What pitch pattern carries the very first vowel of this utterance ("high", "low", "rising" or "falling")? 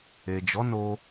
low